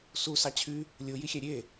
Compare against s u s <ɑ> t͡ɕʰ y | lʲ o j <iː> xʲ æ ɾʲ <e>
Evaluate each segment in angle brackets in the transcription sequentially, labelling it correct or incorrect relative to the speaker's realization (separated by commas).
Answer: correct, incorrect, correct